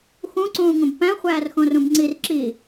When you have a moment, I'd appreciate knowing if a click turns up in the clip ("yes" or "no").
yes